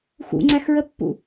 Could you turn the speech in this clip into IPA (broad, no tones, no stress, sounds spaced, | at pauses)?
x ṵ ŋ͡ǀ æ x ɹ ə pː ṵ